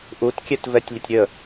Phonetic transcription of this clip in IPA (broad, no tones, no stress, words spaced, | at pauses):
ʔutkʲɛtvɛtʲlʲətʲ ɾʲə